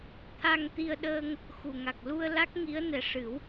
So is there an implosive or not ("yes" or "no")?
yes